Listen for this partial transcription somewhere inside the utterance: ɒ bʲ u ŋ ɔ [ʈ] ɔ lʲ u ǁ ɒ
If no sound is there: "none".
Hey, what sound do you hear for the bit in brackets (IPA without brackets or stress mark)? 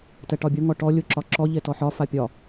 ʈ